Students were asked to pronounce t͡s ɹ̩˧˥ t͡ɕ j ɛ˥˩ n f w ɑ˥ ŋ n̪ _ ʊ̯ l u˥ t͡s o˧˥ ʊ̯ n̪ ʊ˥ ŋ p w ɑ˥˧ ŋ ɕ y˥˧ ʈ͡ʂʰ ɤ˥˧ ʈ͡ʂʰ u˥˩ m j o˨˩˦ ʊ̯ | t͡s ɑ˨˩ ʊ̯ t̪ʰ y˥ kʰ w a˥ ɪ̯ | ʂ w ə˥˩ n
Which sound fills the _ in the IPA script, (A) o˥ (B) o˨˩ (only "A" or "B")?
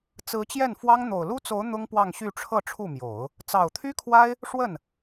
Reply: B